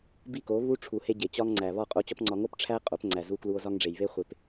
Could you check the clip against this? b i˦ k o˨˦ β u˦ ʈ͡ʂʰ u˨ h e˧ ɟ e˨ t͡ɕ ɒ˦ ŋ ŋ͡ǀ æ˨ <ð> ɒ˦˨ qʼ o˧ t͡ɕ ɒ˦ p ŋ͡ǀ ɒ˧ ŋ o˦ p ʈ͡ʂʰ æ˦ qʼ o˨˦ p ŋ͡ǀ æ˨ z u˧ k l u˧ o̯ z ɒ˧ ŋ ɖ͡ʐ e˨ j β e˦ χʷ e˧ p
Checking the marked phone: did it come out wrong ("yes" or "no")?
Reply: yes